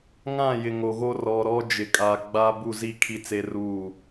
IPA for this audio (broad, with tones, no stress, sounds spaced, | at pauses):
ŋ ã˦˨ j ɪ˨ ŋ o˨ ɣ o˦ r ɔ˨ ɾ ɔ˦ d͡ʒ ɪ˨ kʼ a˨ ɡ͡b a˦ b u˦˨ z i˦ kʰ i˦ t͡s e˦ r uː˦˨